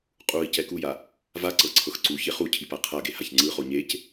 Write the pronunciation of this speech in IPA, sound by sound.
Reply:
qʼ u i̯ c ɛ k u j a | v a ǀ ɤ ǀʰ ɤ x ǀ u ç e χ u cʰ i p a qʰ a ɡ e h a ç ŋ͡ǀ ɯ χ o ɲ e c

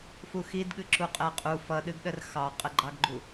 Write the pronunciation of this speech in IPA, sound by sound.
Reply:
f u x i d ɠ ɨ ǁ u qʼ ɛ qʼ u f ʌ ɗ ɨ ɡ ɗ ə r x ɑ qʼ ə ɡ͡ǃ ɑ ɡ ɡ͡ǃ u

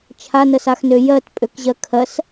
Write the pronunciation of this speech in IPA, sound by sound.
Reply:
t͡ʃʰ a n ə s a x n ø j ɜ t pʼ ø k ʑ ɜ kʰ ɜ s

